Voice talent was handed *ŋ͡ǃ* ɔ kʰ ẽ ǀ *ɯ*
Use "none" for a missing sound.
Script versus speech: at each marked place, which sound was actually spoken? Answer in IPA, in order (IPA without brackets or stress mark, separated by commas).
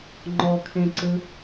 ŋ͡ǃ, ɯ